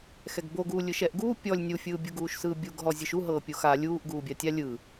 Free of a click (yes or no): yes